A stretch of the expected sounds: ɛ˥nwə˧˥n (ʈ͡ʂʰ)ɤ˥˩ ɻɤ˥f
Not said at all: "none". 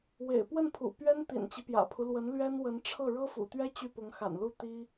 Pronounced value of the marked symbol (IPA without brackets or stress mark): ʈ͡ʂʰ